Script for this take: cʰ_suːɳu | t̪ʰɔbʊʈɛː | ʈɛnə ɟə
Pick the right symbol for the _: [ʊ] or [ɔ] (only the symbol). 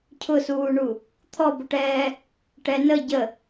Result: ʊ